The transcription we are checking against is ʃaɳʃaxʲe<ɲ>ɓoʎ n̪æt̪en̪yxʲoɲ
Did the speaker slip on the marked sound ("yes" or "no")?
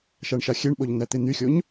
yes